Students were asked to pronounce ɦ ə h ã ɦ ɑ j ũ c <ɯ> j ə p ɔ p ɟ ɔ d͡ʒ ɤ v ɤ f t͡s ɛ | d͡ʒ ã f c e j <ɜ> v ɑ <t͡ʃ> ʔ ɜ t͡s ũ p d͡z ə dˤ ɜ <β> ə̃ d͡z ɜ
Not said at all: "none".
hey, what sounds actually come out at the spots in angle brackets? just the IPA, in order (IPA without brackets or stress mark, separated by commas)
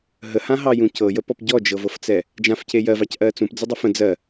ɤ, ɜ, c, f